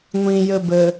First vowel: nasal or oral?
nasal